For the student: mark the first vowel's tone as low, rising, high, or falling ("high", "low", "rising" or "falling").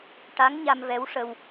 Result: rising